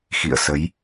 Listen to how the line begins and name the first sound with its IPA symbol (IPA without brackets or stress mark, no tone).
x